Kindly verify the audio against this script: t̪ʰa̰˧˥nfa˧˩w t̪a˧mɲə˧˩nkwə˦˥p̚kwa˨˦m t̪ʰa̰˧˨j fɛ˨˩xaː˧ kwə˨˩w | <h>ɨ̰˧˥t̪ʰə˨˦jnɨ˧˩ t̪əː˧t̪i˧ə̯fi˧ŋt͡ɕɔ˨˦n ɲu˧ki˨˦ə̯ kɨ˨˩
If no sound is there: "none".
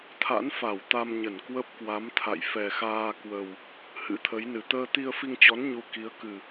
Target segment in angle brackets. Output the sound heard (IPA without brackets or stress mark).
h